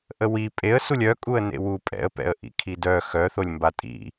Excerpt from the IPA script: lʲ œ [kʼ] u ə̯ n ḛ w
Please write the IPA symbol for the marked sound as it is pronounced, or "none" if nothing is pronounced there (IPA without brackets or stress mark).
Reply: kʼ